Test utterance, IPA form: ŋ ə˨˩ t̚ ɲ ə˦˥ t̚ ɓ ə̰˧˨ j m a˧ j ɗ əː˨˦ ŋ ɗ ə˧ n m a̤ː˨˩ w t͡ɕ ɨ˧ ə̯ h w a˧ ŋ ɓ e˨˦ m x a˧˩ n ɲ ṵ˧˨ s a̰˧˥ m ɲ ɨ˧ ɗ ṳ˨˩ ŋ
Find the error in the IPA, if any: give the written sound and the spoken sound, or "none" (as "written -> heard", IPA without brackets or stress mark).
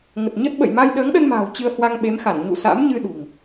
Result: none